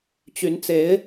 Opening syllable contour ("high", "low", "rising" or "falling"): rising